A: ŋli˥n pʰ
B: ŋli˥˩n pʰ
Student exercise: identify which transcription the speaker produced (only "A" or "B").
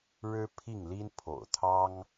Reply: A